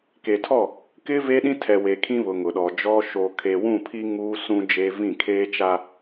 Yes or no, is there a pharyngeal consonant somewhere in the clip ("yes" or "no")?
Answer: no